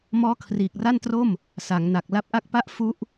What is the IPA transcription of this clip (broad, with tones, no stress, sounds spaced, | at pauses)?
m ɔː˦˥ kʰ r iː˨˩ k̚ r a˥˩ n t r o˥˩ m | s a˩˦ ŋ n a˨˩ k̚ l a˦˥ p̚ ʔ a˥˩ k̚ p a˦˥ ʔ f u˦˥ ʔ